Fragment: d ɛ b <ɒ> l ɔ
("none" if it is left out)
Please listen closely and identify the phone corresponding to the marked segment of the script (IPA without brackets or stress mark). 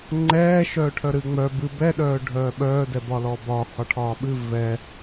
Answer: ɒ